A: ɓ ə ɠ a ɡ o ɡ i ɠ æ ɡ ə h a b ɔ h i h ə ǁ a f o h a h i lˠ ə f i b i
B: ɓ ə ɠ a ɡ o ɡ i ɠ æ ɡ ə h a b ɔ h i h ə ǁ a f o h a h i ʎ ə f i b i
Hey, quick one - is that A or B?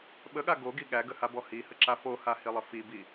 A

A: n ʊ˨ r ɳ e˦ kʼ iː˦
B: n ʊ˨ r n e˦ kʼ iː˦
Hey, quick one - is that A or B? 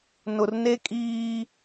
B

